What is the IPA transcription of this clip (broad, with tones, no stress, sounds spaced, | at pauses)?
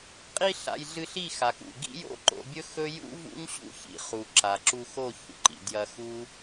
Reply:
qʼ i˧ ɬ a̰˨ j ɮ ɨ˧ ɬ i˦˨ x a˨ k ṵ˨ ɡ ḭ˦ j o̰˦ ǃ o̰˧ bʲ ɵ˦ x ɵ˦ j ṵ˦ v ṵ˦ ɲ ɕ ṵ˦ ç ḭ˨ χ u˨ ǁ a˨ ǁ u˧ x o˦˨ ç ṵ˧ ǃ ḭ˨ d j ɐ˧ x u˦